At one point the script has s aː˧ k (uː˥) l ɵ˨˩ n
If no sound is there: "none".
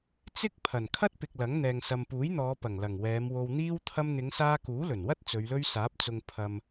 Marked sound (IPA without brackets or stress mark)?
uː˨˥